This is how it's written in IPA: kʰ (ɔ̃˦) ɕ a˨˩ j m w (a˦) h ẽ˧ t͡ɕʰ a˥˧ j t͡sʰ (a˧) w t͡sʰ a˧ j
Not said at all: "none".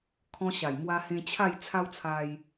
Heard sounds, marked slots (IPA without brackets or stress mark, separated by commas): ɔ̃˧, a˧, a˦